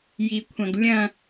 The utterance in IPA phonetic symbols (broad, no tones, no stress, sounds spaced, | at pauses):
j i kʷʰ ɐ̃ ɡ lʲ ɐ̃